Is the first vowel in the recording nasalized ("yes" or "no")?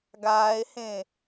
no